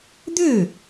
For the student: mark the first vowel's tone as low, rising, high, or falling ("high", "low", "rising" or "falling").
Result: falling